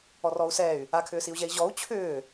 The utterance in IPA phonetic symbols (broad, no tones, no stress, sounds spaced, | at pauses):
ɔ r ɔ u̯ s ɛ y̯ | a kʰ ʏː s i u̯ ʑ ɛ i̯ ʑ ɔ u̯ t͡ɕʰ ʏː